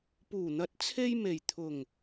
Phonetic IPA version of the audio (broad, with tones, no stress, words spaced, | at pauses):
puː˨˩n̪ɐ˨˥t̚t͡sʰe˧j me˨˩j t̪ʰʊ˨˩ŋ